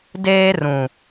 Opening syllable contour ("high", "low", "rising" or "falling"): high